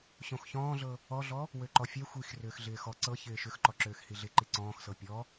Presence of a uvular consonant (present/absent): absent